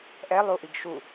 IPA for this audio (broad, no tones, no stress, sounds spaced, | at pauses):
ʔ ɛ lˠ u ʔ i ɡ ʃ u